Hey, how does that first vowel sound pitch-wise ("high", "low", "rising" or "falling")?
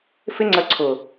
high